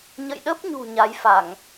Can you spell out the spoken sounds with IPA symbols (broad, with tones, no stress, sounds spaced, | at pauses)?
ɲ ə̰˧˨ j ɗ ə˦˥ p̚ ɲ ṳ˨˩ ɲ a˨˦ j f a˧˩˨ ŋ